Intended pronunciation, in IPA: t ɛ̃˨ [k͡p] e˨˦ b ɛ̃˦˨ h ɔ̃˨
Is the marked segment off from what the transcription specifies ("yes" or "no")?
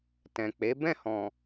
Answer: no